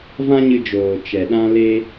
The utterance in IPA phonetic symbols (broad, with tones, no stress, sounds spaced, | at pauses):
v ã˦ ɲ ɨ˧ d͡ʒ oː˨ t͡ʃ ɛ˨ ɗ ã˦ l e˦